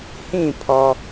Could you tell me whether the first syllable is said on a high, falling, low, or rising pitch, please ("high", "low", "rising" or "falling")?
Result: falling